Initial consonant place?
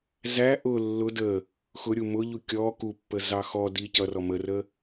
alveolar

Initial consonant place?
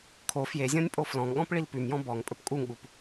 velar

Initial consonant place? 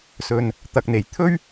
alveolar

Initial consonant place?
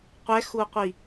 uvular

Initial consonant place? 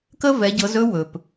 velar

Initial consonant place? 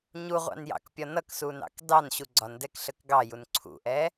palatal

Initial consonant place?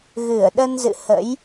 velar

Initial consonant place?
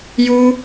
palatal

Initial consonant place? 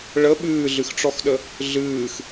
retroflex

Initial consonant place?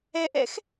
glottal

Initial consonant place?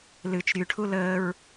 alveolar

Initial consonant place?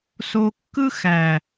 alveolar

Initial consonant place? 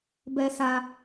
labial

